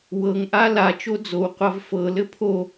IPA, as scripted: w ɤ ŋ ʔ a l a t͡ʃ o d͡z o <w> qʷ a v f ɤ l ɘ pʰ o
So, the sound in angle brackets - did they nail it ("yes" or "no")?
yes